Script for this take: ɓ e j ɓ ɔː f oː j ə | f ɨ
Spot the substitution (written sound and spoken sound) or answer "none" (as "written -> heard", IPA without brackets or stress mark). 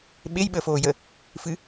ɔː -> əː